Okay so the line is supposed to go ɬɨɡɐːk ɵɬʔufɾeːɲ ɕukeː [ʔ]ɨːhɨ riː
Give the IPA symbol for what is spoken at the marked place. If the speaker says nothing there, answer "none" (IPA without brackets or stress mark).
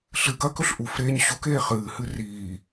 χ